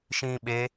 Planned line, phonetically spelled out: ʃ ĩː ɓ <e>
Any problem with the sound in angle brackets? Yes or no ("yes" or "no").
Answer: no